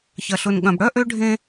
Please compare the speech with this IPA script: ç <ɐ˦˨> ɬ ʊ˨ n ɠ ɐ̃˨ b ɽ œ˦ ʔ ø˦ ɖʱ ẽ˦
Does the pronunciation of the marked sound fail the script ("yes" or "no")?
yes